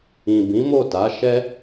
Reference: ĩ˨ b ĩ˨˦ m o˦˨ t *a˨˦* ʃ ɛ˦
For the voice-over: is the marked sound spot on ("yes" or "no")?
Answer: yes